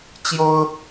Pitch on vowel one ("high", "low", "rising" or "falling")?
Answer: high